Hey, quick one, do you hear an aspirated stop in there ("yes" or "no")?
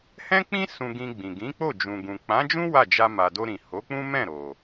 no